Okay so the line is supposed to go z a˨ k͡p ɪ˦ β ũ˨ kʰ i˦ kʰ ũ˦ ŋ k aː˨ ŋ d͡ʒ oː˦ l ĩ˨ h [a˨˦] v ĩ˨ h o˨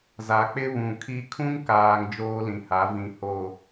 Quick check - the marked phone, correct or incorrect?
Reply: correct